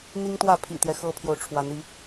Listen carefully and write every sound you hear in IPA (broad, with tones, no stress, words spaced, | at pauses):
n̪i˦ŋt̪wä˥˨pʰḭ˨˩t̪jɛ˦ xɤ˦pʰjo˨ʊ̯ʈ͡ʂʰwa˨˦n i˨˦